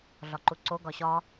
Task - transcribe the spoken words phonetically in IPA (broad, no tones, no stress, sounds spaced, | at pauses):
ɮ ɒ ǃ u ǀ o ɡ ɒ ɕ ɒ